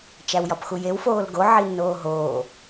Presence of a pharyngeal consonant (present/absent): present